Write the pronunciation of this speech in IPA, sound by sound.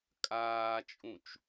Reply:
kʼ aː t͡ʃʼ ũ t͡ʃ

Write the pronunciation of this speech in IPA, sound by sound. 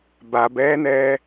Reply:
b a b ɛː n ɛː

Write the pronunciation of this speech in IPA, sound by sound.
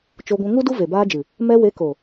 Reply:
t͡ʃ o˧ ɡʷ ũ˧ ŋ u˦ d u˦ v e˨ b aː˧ d͡ʒ ɨ˨ | m ɛ˧ w e˨˦ k o˨

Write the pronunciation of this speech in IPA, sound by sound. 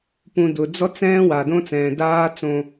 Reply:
p ũ˧ d ʊ˨ d͡z ɔ˦ t͡s ɛ̃ː˦ w a˨ d õ˦ t͡s ɛ̃ː˨ d aː˦ t͡s õ˧

